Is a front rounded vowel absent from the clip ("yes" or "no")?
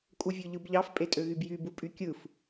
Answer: no